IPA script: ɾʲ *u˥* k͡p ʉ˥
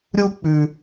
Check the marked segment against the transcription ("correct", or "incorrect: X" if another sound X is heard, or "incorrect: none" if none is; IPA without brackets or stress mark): correct